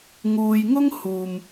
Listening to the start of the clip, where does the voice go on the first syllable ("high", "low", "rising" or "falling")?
low